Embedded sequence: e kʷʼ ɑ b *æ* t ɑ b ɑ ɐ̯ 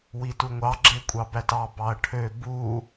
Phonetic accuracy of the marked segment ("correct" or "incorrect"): correct